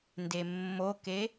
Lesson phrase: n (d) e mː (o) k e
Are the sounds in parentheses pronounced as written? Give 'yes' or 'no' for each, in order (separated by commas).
yes, yes